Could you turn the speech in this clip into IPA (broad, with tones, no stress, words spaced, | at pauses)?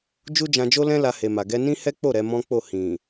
d͡ʒu˦d͡ʒã˧d͡ʒo˦lɛ̃˦ la˧he˨ma˨ ɡɛ˧ nĩ˦hɛ˦ k͡po˦˨ ɾɛ˨˦mɔ̃˦k͡po˦˨ hĩ˨